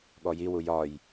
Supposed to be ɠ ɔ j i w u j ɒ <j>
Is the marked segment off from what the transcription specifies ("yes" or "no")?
no